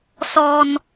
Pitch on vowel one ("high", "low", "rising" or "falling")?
low